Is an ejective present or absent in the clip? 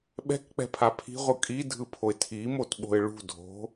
present